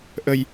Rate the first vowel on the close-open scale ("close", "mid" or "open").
mid